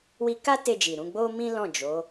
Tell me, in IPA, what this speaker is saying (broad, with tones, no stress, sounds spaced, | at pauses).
w i˧ k a˦ t e˧ d͡ʒ i˨ ɾ ũ˧ ɡ͡b o˦ m ĩ˦ l ɔ̃˦˨ d͡ʒ o˨˦